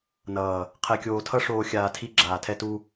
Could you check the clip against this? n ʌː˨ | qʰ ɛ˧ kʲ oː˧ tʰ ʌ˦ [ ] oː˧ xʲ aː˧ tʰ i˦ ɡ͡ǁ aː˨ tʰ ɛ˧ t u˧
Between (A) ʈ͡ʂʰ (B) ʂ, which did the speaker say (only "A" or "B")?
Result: B